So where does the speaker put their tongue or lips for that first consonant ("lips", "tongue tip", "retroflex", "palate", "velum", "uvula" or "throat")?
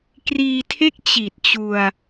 velum